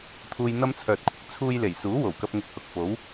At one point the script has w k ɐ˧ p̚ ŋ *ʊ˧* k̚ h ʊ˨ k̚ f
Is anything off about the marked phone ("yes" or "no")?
no